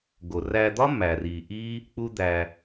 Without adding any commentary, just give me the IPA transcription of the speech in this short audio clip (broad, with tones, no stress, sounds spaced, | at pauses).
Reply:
ɡ o˨ r æ˧ d̪ ɒ˦ m æ˨ r i˨ ʔ i˦ | k͡p u˦ d̪ æ˧